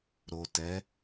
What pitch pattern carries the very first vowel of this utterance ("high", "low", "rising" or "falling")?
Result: low